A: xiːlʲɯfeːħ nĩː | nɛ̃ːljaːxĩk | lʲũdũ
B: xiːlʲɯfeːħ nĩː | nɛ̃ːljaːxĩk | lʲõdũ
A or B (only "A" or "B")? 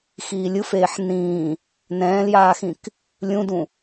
A